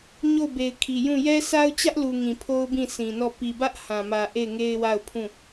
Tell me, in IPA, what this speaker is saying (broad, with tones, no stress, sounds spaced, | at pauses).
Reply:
ɲ o˦˨ ʊ̯ b e˨ ɪ̯ kʰ i˨ j ũ˦˨ j ɛ˦ s a˦ ʊ̯ t͡ɕ ä˦ ʔ l u˨ ŋ ĩ˨ pʰ o˦ ʊ̯ b ĩ˦˨ sʰ ĩ˨ n ɔ˦˨ p i˨ b ä˦ ʔ h ã˨ m ä˨ ʔ e˦˨ ɪ̯ ŋ e˦ ɪ̯ w a˦˨ ʊ̯ pʰ ũ˦˨